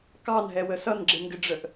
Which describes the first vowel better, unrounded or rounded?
unrounded